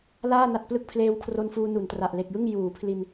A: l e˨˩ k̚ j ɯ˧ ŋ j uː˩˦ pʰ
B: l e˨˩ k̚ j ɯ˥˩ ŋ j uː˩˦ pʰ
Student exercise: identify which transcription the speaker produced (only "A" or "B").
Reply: B